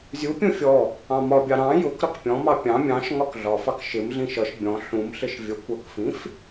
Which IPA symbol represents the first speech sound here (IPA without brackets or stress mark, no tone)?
zʲ